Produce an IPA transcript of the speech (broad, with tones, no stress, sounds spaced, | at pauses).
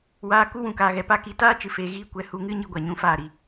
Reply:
w aː˧ k u˦ w ũ˨ k aː˨ ɣ ɛ˧ p a˧ k i˧ t aː˦ t͡ʃ ɨ˨ f eː˨ ɣ iː˧ kʷ ɛ˨ h u˧ ŋ ɨ˦ ɲ i˦ ɡʷ a˨ ɲ ũ˧ f aː˦˨ ɾ i˨